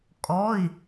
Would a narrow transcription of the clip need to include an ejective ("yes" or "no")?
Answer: yes